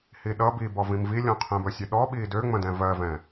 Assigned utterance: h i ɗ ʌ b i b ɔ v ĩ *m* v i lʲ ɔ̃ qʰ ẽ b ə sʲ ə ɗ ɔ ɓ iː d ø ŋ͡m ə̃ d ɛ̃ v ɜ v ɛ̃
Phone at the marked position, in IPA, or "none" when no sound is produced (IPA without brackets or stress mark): m